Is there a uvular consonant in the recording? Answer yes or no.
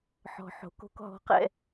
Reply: yes